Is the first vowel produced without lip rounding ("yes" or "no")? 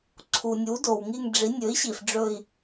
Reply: no